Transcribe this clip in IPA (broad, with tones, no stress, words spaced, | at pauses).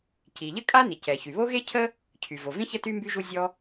ci˩ʎə˥kʼa˥ ni˩cɛ˩çy˩βo˥ ɣe˥cʰə˥ | cʰy˩vo˩vĩ˥ çə˥ty˥ mby˥ʒu˥ zʲɔ˥